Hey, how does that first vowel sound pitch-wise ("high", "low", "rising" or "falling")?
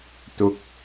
high